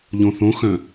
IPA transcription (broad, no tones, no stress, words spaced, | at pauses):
ʎõθõxœ̃